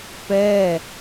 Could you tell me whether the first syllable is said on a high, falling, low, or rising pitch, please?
falling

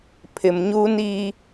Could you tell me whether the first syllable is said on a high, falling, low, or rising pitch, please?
low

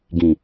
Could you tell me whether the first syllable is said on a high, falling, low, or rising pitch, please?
low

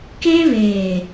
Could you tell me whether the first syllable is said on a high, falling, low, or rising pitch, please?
high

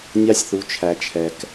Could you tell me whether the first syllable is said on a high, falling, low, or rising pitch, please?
high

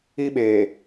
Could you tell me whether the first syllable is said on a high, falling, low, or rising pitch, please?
high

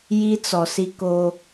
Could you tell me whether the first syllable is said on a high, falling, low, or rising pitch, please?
high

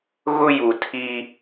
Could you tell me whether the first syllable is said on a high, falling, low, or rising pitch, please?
high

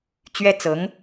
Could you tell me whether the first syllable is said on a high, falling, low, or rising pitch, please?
high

